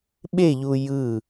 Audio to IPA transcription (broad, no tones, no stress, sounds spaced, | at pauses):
ɓ e ʎ u j ɯ